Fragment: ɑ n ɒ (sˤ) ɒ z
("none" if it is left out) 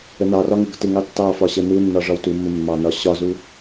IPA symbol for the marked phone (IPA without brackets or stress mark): ɕ